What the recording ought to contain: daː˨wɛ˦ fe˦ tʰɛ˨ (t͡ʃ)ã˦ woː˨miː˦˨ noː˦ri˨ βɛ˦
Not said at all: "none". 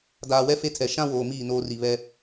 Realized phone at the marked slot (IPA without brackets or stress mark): ʃ